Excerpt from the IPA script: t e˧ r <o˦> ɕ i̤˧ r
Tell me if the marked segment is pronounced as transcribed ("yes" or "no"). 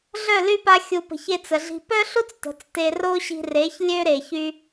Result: yes